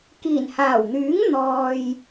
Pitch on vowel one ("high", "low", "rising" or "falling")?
low